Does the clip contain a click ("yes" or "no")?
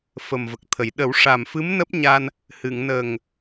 no